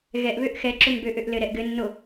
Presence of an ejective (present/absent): absent